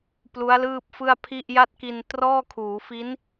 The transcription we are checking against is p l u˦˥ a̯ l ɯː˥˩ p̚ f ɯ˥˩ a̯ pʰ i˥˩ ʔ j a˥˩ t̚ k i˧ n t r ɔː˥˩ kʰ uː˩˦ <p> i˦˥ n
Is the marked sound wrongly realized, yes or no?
yes